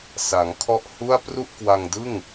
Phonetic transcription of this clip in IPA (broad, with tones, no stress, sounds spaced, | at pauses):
s a˩˦ ŋ kʰ ɔ˥˩ ʔ h u˥˩ a̯ p r u˥˩ ʔ k w a˧ ŋ d ɯ˥˩ ŋ